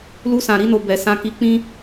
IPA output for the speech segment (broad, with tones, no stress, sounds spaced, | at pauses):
l u˧ s ã˨ ɾ i˧ n o˨ b ɛ˨ s ã˧ k i˧ k͡p ĩ˦